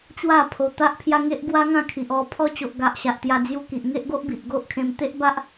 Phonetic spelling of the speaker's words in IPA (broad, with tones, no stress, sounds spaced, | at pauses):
t͡ɕ w a˥˧ pʰ o˧ t̪ a˦ ʔ pʰ j a˦ ŋ e˦ ʔ ɡ w a˦ ŋ ã˥˧ kʰ i˨ ʔ ɔ˧ pʰ ɔ˧ t͡ɕ o˨ ʔ ɡ a˨ ʔ ɕ a˨ ʔ t̪ j a˧ d͡z j u˧ k i˨ ʔ ŋ e˦ ʔ ɡ o˦ ʔ b i˨ ʔ ɡ o˦ ʔ kʰ ẽ˧ m t̪ e˦ ʔ b a˦ ʔ